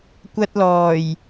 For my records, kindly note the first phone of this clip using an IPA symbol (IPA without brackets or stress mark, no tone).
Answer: kʷ